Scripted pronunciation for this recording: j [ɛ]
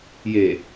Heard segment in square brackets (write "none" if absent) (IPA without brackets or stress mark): e